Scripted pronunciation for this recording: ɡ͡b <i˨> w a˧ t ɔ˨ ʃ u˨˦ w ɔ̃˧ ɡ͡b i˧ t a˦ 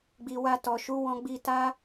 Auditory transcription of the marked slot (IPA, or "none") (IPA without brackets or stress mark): i˨